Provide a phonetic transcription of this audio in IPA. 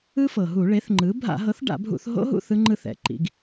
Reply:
ɯ˦˥ f ɤ˩ ɦ u˧˩˧ ɭ e˩˥ θ ŋ͡ǃ ɯ˩˥ bʱ a̰˧˩˧ ɦ ɤ˩˥ θ ɖ a̰˧˩˧ bʱ ṵ˧˩˧ θ ɦ o̰˦˥ ɦ ṵ˦˨ θ ɯ˦˥ ŋ͡ǃ ɯ˦˨ θ ɛ̰˩ ǃ ḭ˩˥ ɡ

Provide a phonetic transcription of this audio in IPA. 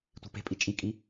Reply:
tʷ i̤ p e̤ pʼ i t͡ʃʼ i kʼ i

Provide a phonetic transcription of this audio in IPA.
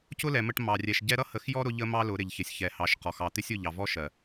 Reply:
c ʊ˦ l ɛ˨ m ə˦˨ ʈ m ɑ˨ rʲ ɛ˨ ʃ ɟ ɛ˦ ɾ ʌ˦ h ə˨˦ x j ɔ˦ ɾ ʊ˦ ʎ ə˦ m ɑ˦ l ʊ˨˦ ɾ ɪ˨ ʎ ç ɪ˨ sʲ ç ɛ˨ h ɑ˨˦ ʃ q ɔ˨ x ɑ˨ t̪ ɪ˦ sʲ ʊ˦˨ ʎ ɑ˨ v ɔ˦ ʃ ɜ˨

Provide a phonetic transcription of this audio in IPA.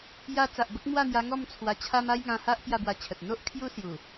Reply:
j a˧ t͡s a˨ ʔ b ə˦ k̚ m w a˥˧ n̪ j a˧ ŋ ɔ˥˧ m t͡sʰ w a˧ t͡ɕʰ a˦ m a˦ j ŋ ã˧ h a˦ ʔ p j a˥˧ b w a˧ t͡ɕʰ ə˨ t̚ n̪ o˦ ʔ kʰ j u˦ s j u˨˩

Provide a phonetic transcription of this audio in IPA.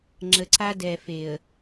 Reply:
ŋ͡ǁ ə˨ ǀ a˦ d ɛ˨ f e˨ ə̯

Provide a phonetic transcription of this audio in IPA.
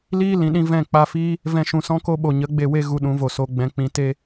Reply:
l iː˦ l ĩ˨ ɗ ĩ˧ v ɛ̃˦˨ k͡p a˧ f iː˦ | v ɛ̃˧ ʃ ũ˨ s ɔ̃˦ k o˦ ɓ o˨ ɲ ə˨˦ ɡ͡b e˦˨ w e˦ ɣ u˧ ɗ ũ˨˦ v o˨ s o˧ ɡ͡b ɛ̃˧ k͡p ĩ˧ t e˦

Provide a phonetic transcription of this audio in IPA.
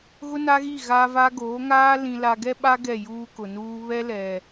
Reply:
ɣ ʊ˦ n a˦ ɣ i˦˨ ɣ a˦ v a˦ ɡ oː˨˦ ŋ aː˦ l ĩ˨ l a˨ ɡ ɛ˦ ɓ a˦ ɡ ɛ˦˨ j uː˦ k ʊ˨ n uː˦ β ɛ˦ l ɛ˨

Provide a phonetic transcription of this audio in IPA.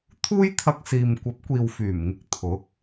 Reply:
t̪ʰ uː˥ j t̪ʰ ɐ˧ k̚ s iː˨ m kʷ ɐ˨˥ p̚ kʷ iː˨ w f yː˨˩ m ŋ ɪ˧ k̚ t̪ʰ ʊ˨˥ k̚

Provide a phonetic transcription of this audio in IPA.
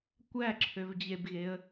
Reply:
kʷ æ ǁʰ ø v d͡ʑ e b ɣ e ə̯

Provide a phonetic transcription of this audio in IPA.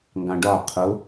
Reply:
ŋ ɡ ɑ̃ ɖ ɒ qʰ ʊ

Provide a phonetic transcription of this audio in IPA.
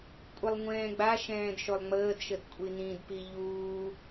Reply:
kʷʼ ə lˠ ŋʷ ɛ̃ː ɡ͡b a ʃ ɛ̃ː d ʃ o lˠ ŋ͡m əː d ʃ ə d kʷʼ i n ĩ d p i ʎ uː

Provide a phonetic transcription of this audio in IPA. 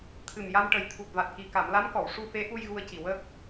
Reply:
t̪ʰ ɨ˨˩ m j a˧ m ʈ ə˨˩ j t̪ʰ u˨˩ t̚ v a˨˩ t̚ k i˨˩ k a˨˩˨ m l a˧˥ m k ɔ˨˩˨ w ʂ u˧ f e˧˥ ʔ u˧ j ɣ u˧ ə̯ c i˨˩ w əː˦˥ k̚

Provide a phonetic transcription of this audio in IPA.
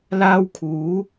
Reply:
l aː˥ w kʰ uː˨˥

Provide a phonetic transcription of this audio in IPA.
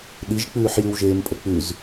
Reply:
ɗ i ʒ k͡p ʉː ħ j ʉ w ʒ eː m pʼ ə k͡p ʉ z

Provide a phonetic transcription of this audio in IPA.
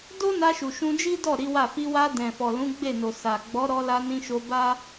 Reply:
d o˦ n a˧ ʃ u˨ ʃ ũ˧ d͡ʒ i˦ d ɔ˦˨ ɾ i˨˦ w a˦˨ f i˧ w a˧ d ɛ̃˨ f ɔ˨ l ũ˨˦ ɡ͡b e˦˨ n o˨ s a˨ ɡ͡b ɔ˨˦ ɾ ɔ˧ l a˧ n ĩ˧ ʃ o˧ b a˦

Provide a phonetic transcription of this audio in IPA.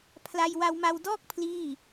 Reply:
pʰ l a˧ j w a˧ w m a˧ w d ɔː˥˩ k̚ pʰ l iː˥˩

